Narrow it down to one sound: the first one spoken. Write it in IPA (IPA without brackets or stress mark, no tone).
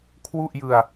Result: kʰ